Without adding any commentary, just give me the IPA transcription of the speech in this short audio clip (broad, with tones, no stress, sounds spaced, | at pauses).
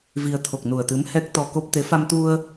v i˧ ə̯ t̪ʰ o˨˩ k̚ n u˨˩ ə̯ t̪ ɨ˨˦ m h ɛ˦˥ k̚ t̪ ɔ˧ k o˦˥ p̚ t̪ e˨˦ f a˧ m t̪ u˧ ə̯